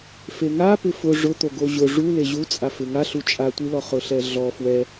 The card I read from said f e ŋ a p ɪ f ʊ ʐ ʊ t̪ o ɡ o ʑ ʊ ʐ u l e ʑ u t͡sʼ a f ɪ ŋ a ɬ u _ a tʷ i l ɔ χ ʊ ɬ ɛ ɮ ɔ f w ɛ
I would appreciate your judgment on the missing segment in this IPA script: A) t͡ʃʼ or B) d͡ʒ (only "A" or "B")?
A